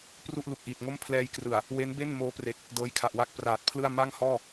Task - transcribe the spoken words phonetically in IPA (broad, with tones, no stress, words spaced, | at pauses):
pru˥˩ʔlu˨˩k̚ʔiː˨˩t̚ ŋo˥˩m pʰlɛː˧jkrɯ˨˩a̯ | we˦˥nbe˥˩n moː˦˥pre˨˩k̚ | dɤː˦˥jkʰa˨˩ʔwa˥˩k̚ praː˨˩t̚pʰlɯ˥˩a̯ ma˥˩ŋhɔː˥˩